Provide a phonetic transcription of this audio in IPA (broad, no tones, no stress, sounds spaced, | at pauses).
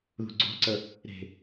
ð ṳ ɡ͡ǀ o̤ ǀ ə | ɾ e̤